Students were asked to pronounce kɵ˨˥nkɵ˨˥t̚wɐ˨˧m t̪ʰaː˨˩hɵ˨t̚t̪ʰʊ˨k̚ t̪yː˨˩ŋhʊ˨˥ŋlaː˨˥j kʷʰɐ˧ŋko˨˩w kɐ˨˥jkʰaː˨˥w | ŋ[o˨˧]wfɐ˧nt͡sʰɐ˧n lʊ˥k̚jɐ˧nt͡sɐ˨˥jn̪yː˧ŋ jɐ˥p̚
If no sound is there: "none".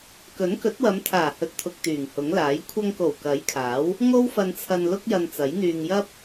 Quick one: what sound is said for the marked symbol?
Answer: o˥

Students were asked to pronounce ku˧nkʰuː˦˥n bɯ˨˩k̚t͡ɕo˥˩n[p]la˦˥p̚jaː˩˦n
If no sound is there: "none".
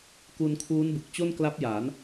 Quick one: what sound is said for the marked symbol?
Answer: k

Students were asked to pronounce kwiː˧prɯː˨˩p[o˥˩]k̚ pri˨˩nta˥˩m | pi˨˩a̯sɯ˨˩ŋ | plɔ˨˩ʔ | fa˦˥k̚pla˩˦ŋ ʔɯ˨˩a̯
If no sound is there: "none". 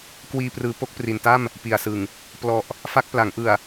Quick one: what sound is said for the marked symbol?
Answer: o˥˩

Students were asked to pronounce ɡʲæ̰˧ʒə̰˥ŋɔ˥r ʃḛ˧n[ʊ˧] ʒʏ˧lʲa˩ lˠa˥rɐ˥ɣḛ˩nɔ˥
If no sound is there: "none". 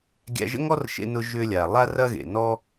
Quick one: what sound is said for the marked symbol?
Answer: ʊ˧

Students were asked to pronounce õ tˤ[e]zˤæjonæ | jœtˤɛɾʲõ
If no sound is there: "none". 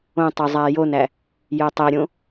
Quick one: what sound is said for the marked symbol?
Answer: ø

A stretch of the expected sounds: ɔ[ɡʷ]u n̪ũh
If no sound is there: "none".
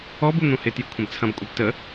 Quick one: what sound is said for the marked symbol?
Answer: b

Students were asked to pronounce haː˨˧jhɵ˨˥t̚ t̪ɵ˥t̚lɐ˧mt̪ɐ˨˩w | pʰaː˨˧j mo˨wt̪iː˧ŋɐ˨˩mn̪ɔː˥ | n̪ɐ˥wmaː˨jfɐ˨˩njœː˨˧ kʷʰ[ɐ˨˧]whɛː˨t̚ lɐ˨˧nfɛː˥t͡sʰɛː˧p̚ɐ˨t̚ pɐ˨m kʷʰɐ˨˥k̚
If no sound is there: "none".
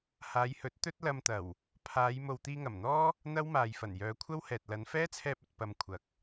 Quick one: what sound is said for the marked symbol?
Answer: ɐ˥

